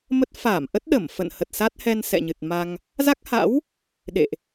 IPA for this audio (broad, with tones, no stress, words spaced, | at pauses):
mə˦˥t̚ fa˧˩m ʔə˦˥t̚ɗə˧˩mfə̰˧˨n hə˨˩t̚sa˦˥t̚hɛ˧n sɛ̰˧˨ɲɨ˨˩t̚ma˧ŋ | za˦˥k̚ha̰˧˥w | ɗḛ˧˨ʔ